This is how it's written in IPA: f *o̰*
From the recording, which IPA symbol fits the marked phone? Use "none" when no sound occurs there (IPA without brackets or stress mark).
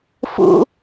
ṵ